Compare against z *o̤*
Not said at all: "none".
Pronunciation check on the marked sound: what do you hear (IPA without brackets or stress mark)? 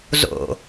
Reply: o̰